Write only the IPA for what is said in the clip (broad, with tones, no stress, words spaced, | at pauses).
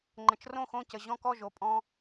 ŋ͡ǃə̃˨t͡ʃrõ˥˨xõ˥˨ cə˨ ʑɔ̃˥˨kɔ˥˨ʒo˨ pʼɔ̃˦